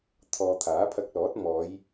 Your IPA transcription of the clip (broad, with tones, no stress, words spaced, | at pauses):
t̪ʰɔː˨ t̪ʰaː˨˥pʰɐ˧k̚lɔː˨˥t̚ mɔː˨˧j